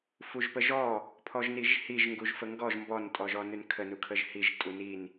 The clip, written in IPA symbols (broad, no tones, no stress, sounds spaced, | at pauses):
f u ʒ p ə ʒ ɔ | pʰ ɔ ʒ n i ʒ h i ʒ ŋ ɡ u ʒ f ə ŋ ɡ ɔ ʒ m b ɔ n tʼ ɔ ʒ ɔ n ʉ n kʰ ə n u kʰ ə ʒ h i ʒ tʼ u n i n